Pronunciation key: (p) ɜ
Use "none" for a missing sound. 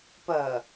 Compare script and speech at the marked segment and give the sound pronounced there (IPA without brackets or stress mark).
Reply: p